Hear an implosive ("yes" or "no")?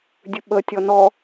yes